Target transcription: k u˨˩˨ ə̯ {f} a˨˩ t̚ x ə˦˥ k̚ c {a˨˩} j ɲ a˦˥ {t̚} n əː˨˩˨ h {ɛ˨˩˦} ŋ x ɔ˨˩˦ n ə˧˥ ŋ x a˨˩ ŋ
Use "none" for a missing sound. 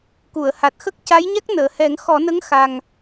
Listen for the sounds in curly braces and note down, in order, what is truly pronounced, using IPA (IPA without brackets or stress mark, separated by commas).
h, a˧˥, k̚, ɛ˨˩˦